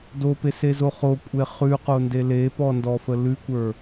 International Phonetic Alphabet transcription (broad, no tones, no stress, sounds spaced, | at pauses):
d o p e s e z o χ o kʷʼ e χ ʉ q o n d e l e p ɔ n d ɔ f ə l ʉ kʷ ə˞